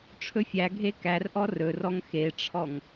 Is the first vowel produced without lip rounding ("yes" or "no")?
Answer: no